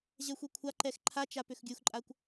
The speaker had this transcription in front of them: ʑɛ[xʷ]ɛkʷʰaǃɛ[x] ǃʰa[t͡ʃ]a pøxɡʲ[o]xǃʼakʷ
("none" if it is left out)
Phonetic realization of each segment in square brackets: xʷ, x, t͡ʃ, u

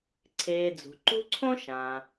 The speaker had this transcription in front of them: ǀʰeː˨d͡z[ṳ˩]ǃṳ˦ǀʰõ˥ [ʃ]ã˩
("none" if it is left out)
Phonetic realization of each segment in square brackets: ṳ˩, ʃ

